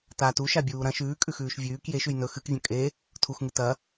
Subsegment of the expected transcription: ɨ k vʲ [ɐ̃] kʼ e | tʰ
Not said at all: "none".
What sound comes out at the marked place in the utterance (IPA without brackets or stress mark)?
ɐ̃